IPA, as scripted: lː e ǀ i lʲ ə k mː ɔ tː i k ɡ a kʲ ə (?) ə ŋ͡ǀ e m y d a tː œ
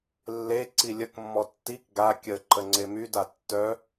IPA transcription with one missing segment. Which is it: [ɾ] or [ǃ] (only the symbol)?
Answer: ǃ